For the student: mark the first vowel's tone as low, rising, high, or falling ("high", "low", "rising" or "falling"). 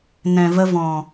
low